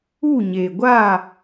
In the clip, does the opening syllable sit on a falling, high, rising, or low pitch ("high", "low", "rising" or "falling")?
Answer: falling